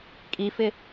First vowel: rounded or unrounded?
unrounded